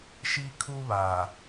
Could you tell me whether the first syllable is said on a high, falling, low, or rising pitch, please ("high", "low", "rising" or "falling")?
high